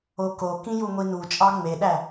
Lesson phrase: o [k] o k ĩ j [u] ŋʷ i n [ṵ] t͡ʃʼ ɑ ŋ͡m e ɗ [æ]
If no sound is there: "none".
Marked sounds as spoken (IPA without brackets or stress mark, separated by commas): k, u, u, æ